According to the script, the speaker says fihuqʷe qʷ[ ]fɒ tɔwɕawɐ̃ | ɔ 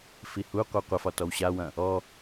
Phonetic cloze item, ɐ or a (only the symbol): ɐ